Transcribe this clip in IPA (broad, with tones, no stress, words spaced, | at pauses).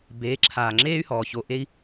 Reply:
beː˨˦ǁʰaː˨ŋ͡ǁeː˦y̯hɔː˨ ço˨ ʔe˧i̯